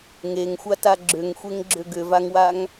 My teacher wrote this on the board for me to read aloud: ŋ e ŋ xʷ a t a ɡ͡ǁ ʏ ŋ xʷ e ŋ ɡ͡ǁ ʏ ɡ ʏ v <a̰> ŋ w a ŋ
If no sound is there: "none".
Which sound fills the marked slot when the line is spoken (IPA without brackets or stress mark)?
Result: a